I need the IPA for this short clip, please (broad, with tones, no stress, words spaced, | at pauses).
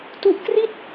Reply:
tu˦˥ʔkri˥˩t̚